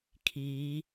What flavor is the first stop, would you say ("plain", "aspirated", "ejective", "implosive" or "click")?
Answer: aspirated